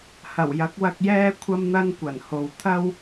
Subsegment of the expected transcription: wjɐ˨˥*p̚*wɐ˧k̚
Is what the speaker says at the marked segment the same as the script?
no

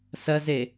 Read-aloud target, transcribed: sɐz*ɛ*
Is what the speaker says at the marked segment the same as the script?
no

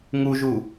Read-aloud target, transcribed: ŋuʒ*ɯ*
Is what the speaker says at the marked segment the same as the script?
no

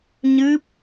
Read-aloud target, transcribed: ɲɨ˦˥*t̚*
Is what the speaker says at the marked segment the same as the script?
no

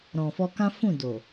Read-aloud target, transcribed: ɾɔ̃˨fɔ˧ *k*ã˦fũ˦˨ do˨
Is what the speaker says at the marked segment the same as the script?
yes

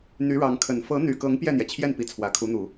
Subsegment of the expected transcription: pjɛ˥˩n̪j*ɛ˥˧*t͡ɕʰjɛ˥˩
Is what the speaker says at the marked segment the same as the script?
no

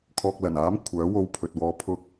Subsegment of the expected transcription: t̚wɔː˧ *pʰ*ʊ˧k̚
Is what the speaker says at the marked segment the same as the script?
yes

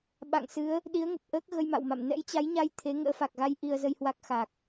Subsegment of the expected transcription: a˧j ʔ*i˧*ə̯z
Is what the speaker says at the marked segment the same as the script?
yes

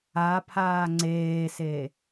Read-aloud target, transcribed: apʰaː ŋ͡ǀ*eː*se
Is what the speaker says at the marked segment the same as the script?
yes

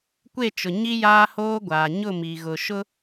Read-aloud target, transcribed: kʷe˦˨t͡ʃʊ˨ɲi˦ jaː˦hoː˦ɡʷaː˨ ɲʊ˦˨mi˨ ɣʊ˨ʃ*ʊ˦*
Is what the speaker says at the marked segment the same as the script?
yes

